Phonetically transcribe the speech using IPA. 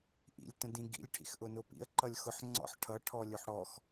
ʔḭlʲtə̃ dĩɡḭlʲ ʈʰḭxʔʊnʊpḭə̯ ǃʌlʲxʊħŋ͡ǀɔ̰ħ ʈʰʌ ʈʰɔlʲʊħɽɔx

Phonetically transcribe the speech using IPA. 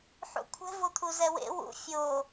ħṵkʷʰɛ̤ vot̪ʰuzɛwḛ wṵ fʲo

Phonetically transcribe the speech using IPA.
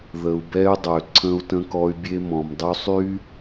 ðə˨u̯bɛ˦y̯dˤø˨ ǀʰə̃˦u̯tə̃˦kɔ˦y̯ bʲe˦ mɔ̃˨mdˤy˦sˤy˦

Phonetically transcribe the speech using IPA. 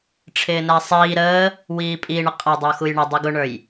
ʈ͡ʂʰɪːnæsˤiː ɾəː | wiːpʼiɳə qʼʌ dˤʊːxujɳʌ dˤiɡʊɳə˞j

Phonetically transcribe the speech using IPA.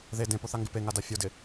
ðe dẽpoθaŋɡɪ peŋada fʲodɪ

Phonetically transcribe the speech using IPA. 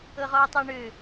ɤʁɔwtˤɤɳø

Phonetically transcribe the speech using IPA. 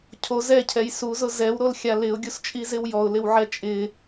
cʰo zɛcʰɛj suzʊ zɛwɾolxʲa lɪʊ̯ɡʲust͡ʃʼizɪw jɔʊ̯lɪwʕɛ t͡ʃʼɪ

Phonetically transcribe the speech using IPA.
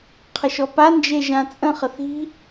qʰəʃɔpa nd͡ʒeʒãt͡sʼə̃ χəθi̤

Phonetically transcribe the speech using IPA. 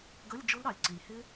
ɡə˧˥˧lʲ d͡ʒʊ˦˥lɾɑ˩lʲǀi˩lʲhɪ˦˥

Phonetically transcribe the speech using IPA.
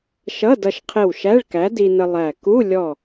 ʃʌ˧˥˧dʌ˧ʃqʰɪ˧˩w ʃæ˧˥˧ɭkæ˨˥di˧nə˧ lˠæ˧˩ ku˧˥˧lʲɔ˧˩

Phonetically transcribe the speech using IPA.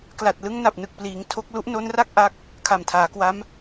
kla˨˩t̚ lɯ˦˥ŋna˨˩p̚nɯ˨˩k̚pliː˩˦ŋ tʰo˦˥k̚ lu˦˥ʔno˦˥nra˥˩k̚ ʔa˦˥k̚ | kʰa˨˩mtʰaː˩˦kwa˦˥m

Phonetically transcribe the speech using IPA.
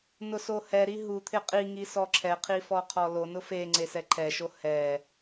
nʊsohɛɾi ɦut̪ʰɪ qʼiŋi sɔǁʰɛqʰi fɔqʰɔlonʊ feŋ͡ǀe sɛǃʰɛʃo hɛ

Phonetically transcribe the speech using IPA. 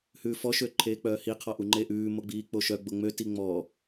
hʉːfɔ ʃøǃʰeːk͡pœːhi qʰɔʔuŋ͡ǃeʔʉː moɡ͡biːk͡poʃœ ɡ͡boŋ͡mø tiŋ͡mɔ

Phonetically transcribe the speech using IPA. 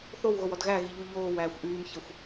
θowɣowɔd ɣæɣiʎu ʎoːwæːxʷ ʔyːmçəxʷ

